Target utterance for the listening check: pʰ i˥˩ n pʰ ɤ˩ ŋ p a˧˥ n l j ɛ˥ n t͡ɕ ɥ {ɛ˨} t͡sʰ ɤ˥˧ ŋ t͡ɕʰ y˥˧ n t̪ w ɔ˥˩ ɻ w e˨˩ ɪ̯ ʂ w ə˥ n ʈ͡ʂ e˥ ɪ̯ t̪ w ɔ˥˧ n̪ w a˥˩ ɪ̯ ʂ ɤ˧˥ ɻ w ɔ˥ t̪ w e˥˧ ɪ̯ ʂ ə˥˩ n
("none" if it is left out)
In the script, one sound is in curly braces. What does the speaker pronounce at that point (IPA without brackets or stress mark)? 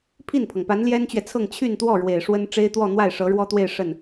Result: ɛ˨